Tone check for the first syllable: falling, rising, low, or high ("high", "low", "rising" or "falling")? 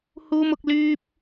high